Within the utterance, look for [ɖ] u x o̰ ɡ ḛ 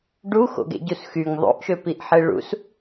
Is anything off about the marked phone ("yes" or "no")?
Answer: no